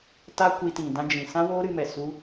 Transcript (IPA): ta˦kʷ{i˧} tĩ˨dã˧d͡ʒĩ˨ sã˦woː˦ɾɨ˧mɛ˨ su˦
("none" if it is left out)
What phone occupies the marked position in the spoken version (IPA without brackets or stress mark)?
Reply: i˧